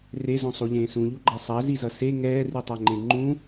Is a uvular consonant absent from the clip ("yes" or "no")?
yes